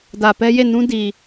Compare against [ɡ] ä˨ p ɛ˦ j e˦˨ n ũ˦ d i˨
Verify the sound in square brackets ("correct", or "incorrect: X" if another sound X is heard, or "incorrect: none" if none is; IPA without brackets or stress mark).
incorrect: d